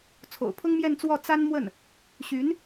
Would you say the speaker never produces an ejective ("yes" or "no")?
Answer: yes